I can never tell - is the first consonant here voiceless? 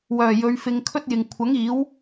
no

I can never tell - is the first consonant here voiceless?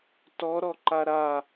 yes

